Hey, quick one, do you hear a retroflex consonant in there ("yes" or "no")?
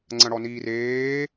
yes